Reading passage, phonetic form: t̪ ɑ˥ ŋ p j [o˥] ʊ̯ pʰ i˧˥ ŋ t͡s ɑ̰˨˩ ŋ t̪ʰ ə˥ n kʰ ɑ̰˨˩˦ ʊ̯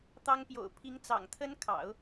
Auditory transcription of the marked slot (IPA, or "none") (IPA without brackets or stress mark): o̰˨˩